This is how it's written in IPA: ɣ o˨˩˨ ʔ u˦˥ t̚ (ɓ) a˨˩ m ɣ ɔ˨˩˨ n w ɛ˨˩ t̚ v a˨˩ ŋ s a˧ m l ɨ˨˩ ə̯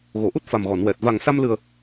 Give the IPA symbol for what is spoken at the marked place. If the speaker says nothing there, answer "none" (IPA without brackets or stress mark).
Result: f